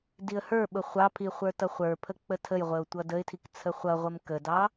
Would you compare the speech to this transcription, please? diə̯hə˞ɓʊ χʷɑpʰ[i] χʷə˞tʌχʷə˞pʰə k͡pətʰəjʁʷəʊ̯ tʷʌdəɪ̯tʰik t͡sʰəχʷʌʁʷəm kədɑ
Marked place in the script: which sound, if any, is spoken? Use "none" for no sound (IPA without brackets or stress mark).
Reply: i